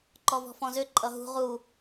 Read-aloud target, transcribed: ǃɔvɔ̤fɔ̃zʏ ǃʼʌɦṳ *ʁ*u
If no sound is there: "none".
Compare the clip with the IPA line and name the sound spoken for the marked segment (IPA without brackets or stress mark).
ʁ